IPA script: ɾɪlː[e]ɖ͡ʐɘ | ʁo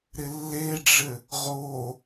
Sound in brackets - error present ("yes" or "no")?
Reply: no